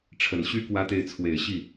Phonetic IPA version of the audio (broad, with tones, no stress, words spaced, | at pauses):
ʈ͡ʂʰə˨˩nɕy˥ kwä˥t̪e˥˩ɪ̯ t͡sʰwe˨˩ɪ̯ɕi˥˩